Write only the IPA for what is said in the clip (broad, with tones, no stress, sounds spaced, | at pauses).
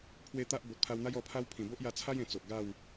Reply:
pʰ w e˦ t̪ a˦ ʔ b o˨ t̚ pʰ a˧ w n̪ a˦ j ɔ˧ pʰ a˦ w pʰ ĩ˨˩ b o˦ ʔ j a˧ t͡sʰ a˦ j ẽ˨˩ t͡s o˨ ʔ ɡ a˥˧ w